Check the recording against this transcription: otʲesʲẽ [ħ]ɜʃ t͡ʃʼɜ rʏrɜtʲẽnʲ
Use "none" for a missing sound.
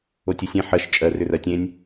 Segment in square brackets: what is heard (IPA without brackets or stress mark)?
ħ